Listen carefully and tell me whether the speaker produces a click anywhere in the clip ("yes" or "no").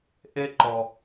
yes